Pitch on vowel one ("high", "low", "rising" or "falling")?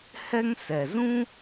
high